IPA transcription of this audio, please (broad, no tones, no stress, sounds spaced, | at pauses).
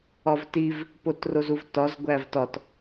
ɒ v t i v | p o t r o z u v t ɒ z ɡʷ æ v t ɒ t